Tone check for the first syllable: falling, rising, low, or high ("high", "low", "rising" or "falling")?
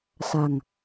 low